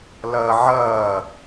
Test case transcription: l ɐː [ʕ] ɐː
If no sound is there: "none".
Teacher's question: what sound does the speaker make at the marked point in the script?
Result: ʕ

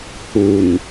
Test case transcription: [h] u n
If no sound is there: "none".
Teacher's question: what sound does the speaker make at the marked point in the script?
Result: h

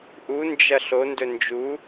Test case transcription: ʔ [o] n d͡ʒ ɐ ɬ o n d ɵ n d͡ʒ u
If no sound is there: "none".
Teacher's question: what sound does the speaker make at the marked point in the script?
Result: u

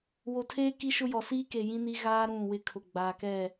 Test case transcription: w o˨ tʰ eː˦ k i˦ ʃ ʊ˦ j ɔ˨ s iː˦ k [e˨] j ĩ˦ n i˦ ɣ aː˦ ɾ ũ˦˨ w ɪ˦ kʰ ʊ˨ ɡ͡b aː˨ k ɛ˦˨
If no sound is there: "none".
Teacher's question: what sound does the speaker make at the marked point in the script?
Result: e˨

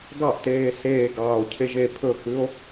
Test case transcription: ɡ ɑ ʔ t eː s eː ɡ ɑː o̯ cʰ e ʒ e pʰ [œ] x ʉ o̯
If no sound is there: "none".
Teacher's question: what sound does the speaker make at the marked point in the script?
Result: ɵ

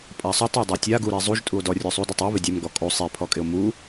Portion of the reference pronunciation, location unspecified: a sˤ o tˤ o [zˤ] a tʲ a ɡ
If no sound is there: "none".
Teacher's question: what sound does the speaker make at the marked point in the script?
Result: dˤ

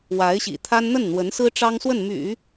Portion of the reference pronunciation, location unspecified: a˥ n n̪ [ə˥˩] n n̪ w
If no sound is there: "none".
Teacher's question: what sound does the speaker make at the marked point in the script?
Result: ə˥˩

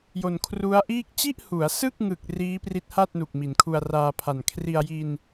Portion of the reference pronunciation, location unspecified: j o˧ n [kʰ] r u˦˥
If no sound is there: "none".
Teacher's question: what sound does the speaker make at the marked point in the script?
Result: kʰ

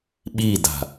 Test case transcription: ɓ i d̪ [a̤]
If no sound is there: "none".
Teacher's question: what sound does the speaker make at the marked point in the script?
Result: a̤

